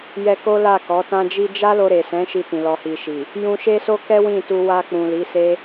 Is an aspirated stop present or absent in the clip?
absent